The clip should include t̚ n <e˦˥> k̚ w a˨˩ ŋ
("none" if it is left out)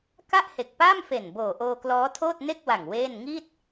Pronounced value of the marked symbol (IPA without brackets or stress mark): e˥˩